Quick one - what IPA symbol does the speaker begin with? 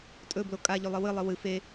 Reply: tʼ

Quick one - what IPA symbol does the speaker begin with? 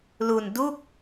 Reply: l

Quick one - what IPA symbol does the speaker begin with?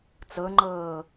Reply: t͡s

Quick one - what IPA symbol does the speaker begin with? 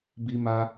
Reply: b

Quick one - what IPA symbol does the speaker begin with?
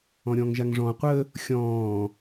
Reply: ɔ̃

